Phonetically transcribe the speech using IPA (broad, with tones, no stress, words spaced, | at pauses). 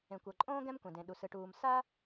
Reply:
ẽ˩kʷɤ˩ǃʼõː˥ ɡɛ̃˥mkʷɛ̃˩dẽ˩ɗu˩ sɯ˩ʈuː˩m sa˥